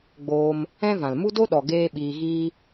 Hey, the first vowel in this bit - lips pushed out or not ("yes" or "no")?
yes